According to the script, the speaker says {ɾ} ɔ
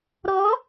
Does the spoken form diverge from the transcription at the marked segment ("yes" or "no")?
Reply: no